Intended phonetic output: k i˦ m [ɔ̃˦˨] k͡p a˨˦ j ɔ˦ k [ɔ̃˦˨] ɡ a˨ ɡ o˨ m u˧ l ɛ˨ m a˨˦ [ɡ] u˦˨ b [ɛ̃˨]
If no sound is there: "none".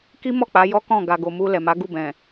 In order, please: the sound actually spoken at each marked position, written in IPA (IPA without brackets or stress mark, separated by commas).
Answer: ɔ˦˨, ɔ̃˦˨, ɡ, ɛ̃˨